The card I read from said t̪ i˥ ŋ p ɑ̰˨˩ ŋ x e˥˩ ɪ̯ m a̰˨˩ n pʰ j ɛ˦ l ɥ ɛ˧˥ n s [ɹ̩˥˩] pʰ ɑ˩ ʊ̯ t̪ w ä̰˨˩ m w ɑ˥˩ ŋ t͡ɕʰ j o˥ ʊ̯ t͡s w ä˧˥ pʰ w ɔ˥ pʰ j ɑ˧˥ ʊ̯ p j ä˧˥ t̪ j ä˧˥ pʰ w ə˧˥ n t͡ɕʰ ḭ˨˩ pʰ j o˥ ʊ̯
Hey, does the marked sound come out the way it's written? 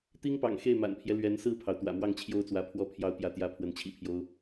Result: yes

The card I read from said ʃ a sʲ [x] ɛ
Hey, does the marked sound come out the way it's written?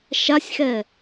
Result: yes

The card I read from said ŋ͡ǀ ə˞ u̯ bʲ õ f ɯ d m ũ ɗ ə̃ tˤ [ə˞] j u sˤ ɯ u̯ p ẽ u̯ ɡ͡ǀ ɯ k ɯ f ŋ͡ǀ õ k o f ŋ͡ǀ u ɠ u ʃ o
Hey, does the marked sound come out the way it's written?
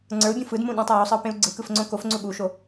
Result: no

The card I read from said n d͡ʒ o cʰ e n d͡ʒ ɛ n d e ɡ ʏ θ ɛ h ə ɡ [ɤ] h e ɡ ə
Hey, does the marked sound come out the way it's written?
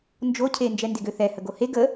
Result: no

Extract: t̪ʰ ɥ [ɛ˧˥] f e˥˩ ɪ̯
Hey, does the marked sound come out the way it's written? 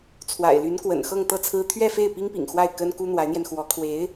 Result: no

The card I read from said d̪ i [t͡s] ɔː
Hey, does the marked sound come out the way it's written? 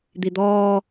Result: no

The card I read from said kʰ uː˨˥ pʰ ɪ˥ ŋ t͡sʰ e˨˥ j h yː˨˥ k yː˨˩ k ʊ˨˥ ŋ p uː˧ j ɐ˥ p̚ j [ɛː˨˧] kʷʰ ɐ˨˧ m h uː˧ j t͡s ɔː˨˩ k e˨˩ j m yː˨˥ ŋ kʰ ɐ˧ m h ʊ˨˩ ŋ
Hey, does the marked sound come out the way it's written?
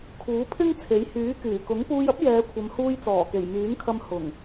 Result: yes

